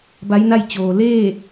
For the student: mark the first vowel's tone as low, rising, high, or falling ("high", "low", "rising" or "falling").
rising